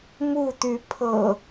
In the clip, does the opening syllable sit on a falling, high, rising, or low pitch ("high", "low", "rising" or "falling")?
falling